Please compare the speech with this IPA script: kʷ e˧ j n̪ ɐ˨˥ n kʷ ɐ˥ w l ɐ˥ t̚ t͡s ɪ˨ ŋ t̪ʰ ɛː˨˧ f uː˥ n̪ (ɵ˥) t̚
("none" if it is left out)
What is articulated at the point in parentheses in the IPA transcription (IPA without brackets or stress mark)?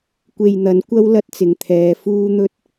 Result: ɵ˥